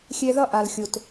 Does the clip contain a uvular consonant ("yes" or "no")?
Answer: no